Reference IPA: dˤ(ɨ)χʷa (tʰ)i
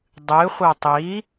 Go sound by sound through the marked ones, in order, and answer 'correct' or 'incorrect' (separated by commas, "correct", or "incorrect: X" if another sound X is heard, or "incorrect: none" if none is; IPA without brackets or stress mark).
correct, incorrect: tˤ